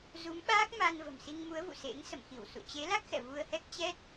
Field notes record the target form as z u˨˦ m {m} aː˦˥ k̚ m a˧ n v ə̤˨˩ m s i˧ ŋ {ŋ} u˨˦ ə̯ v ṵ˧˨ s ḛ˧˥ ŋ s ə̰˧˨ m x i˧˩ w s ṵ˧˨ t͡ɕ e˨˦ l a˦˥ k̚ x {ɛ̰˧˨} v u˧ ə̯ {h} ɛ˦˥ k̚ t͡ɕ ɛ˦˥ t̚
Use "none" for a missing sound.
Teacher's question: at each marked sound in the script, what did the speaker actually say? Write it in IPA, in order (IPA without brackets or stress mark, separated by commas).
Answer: ɓ, m, ɛ̰˧˨, h